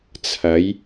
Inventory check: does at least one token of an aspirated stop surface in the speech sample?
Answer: yes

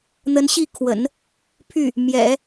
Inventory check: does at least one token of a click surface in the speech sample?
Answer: no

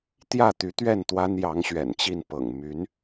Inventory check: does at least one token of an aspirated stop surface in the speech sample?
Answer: no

